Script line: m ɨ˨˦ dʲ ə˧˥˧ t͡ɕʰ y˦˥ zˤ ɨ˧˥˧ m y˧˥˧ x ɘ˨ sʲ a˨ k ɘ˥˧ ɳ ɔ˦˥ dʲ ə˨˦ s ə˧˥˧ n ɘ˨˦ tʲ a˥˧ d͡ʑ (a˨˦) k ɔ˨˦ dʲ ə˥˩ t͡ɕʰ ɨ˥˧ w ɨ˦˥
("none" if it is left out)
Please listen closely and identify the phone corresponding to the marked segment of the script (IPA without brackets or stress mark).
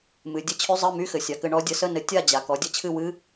a˨